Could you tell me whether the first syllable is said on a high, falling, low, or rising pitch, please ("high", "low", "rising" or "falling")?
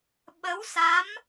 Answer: rising